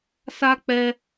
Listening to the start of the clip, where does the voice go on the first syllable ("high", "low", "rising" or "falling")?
high